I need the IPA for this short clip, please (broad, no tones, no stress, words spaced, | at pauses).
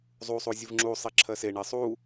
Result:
zˤusˤu zʲɯvŋ͡ǁusˤi ǁʰɜseɳe sˤu